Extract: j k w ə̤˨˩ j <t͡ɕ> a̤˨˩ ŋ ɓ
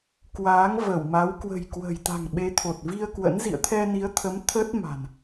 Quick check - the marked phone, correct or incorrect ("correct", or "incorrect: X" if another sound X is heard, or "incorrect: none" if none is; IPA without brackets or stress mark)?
incorrect: t̪